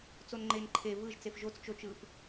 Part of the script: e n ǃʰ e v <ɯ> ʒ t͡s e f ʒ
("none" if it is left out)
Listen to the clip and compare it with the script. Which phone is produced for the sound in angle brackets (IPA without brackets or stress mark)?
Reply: ɯ